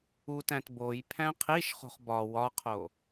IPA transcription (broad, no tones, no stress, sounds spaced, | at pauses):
u t æ̃ t b o j pʰ æ̃ qʰ i ʃ χ o̤ χ b ɒ w ɒ qʰ o